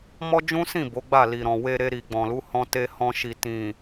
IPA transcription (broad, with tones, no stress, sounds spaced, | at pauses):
m ɔ˦ d͡ʒ ũ˦ s ĩ˦˨ b o˨˦ ɡ͡b a˦˨ l i˨ ɾ ɔ̃˨ w e˧ ɾ e˧ ɾ i˨ ɡ͡b ɔ̃˨ l u˨˦ h ɔ̃˧ t e˧ h ɔ̃˧ ʃ i˨ t ĩ˨